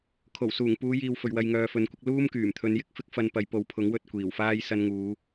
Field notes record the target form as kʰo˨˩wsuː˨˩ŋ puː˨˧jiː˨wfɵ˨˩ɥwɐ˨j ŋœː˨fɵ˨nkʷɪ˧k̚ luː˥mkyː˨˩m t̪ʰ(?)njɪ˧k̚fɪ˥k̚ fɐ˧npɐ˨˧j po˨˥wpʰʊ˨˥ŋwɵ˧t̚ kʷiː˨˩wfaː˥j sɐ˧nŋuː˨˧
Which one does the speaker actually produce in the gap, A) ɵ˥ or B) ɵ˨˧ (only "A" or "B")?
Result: B